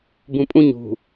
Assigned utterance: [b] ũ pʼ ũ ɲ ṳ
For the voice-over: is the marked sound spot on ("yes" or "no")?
yes